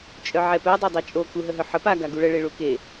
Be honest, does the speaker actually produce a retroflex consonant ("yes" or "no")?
yes